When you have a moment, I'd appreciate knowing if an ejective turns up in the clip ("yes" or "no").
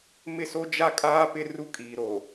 yes